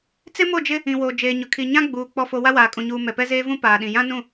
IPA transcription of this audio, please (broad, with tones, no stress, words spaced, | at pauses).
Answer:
t͡sɪ˦mo˦˨d͡ʒɪ˦ | ĩ˨woː˨ d͡ʒeː˨ɲʊ˨kʰi˨ ɲã˦ɡ͡buː˨ k͡pɔ˨fo˨ wa˦waː˨ kʼũ˨ɲuː˨ mɛ˨ pɛ˦zeː˦vũ˦ paː˨ɗĩ˨ jã˦nũ˦˨